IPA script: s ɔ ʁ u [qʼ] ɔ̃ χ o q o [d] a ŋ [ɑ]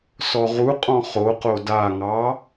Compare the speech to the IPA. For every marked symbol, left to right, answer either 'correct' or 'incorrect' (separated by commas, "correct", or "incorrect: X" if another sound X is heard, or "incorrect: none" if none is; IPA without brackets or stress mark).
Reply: correct, correct, correct